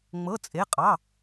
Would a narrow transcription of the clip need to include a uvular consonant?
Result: yes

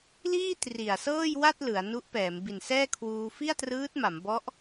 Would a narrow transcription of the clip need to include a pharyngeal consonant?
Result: no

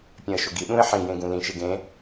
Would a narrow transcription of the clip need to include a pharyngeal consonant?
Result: yes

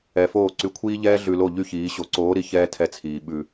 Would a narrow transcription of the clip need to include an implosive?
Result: yes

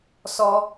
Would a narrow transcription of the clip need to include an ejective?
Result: no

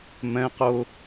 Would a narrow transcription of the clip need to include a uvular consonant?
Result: yes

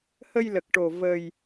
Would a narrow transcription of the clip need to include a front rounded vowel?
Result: no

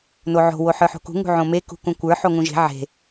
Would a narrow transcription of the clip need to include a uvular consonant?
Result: no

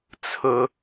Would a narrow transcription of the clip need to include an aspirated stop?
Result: yes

